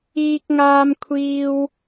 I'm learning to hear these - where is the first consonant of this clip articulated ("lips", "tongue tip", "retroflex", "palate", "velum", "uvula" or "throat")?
velum